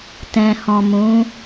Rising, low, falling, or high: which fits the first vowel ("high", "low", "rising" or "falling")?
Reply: low